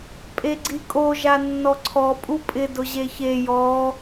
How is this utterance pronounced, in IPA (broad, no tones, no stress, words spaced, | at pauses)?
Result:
pʼeɡ͡ǀikʼo ʒanːɔǀʰɔ pʼupʼɪ dʊʑeçe jɔ